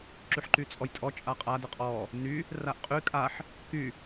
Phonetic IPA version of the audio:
ǁ y ħ ǃ y t͡sʼ ɔ j tʼ ɔ t͡ʃʼ a qʼ a d ə qʼ ɔ | n y | r a ʔ qʼ y kʼ a ħ | k y

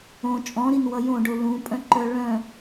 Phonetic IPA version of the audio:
õ t͡ʃʼ ɔ̃ ɾ i n w ʌ j õ ɖ o l ũ pʼ œ̃ ǃ œ ɭ œ̃

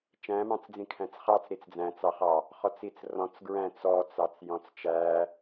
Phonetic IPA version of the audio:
t͡ʃ æ̃ m ɑ̃ t͡s d͡z ĩ kʰ æ̃ t͡s χ ɑ t͡s ɾ i t͡s d͡z æ̃ t͡s ɑ χ ɑ | χ ɔ t͡s i t͡s r ɔ̃ t͡s ɡ ɹ æ̃ t͡s ɔ t͡s ɑ t͡s j ɔ̃ t͡s t͡ʃ æ

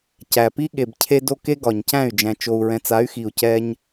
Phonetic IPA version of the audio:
c æ˨ p i˦ ɠ e˨ b cʰ e˦ d o˦ k e˦ ɡ ɒ˨ ɲ c æ̃˦˨ y̯ d͡ʒ æ̃˨ t͡ʃ o˨ u̯ ɹ ɛ̃˨ t͡s a˨˦ y̯ x i˨ u̯ c ɛ˦ ɲ

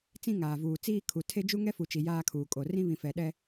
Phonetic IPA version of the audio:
t͡s ĩ˦ ŋ aː˨ v uː˨ t͡s iː˦ kʰ u˨ tʰ e˦ d͡ʒ u˦ ŋ ɛ˦ f u˨ t͡ʃ i˨ j aː˦ kʰ uː˨ kʼ o˨ r ĩ˦ β ĩ˨ f ɛ˨ ɗ ɛ˦

